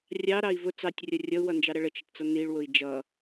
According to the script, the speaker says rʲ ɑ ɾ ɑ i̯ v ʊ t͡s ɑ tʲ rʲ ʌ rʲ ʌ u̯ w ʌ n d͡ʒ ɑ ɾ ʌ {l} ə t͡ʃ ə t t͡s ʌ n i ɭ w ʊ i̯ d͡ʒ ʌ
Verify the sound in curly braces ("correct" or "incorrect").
incorrect